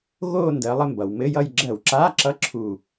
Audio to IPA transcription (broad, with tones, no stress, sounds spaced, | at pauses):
ɣ o˥˧ n d ɜ˨˦ lˠ ɘ˥˧ m b ʌ˩ w m ɘ˧˥˧ j ʌ˥˧ j ɡ͡ǁ ɜ˧˩˧ w ǁ a˧˥˧ ǁ ʌ˧˥˧ ǁʰ u˧˩